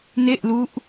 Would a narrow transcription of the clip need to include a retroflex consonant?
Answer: no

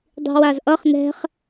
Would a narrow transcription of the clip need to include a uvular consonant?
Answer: yes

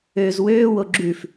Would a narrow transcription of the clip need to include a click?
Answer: yes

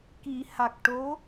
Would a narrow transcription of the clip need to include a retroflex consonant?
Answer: yes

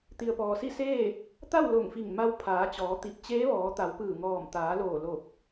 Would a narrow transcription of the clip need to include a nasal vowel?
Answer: no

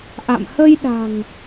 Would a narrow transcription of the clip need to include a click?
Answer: no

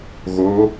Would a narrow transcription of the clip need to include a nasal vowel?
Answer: no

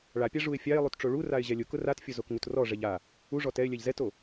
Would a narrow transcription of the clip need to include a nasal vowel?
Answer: no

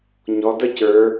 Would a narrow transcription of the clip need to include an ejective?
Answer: no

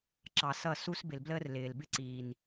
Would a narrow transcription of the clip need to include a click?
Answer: yes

